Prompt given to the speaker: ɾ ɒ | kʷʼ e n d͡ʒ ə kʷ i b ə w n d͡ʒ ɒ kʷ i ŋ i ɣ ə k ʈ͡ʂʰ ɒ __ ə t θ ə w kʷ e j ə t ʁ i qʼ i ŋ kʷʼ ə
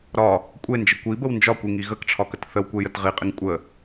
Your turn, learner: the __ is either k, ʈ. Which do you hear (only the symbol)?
k